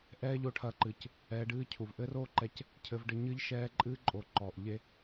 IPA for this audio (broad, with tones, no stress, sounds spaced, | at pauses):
ʔ ɛː˦ ʎ o˧ ʈʰ ɐ˧ ǃ ɨː˨ c | ɛː˧ ɖ ɨː˦ cʰ u˨ v ʔ ɘ˦ r o˦ ǃ ɛ˧ c | cʰ ɘ˧ v ɖ ɘ˧ ɲ ɨ˦ ʎ ʃ ɛː˧ ǃʼ ɨː˦ ǃʼ o˨ ǃ ɔː˨ ʔ ʎ e˦